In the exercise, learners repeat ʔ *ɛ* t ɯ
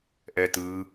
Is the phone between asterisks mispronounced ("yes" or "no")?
no